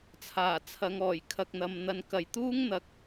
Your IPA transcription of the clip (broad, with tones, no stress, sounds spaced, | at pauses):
t͡sʰ aː˨˩ t͡sʰ ɐ˨˧ ŋ ɔː˨˩ j kʰ ɐ˨ k̚ n̪ ɐ˨ m n̪ ɐ˨ n k ɐ˨ j t̪ uː˥ ŋ n̪ ɐ˨˥ k̚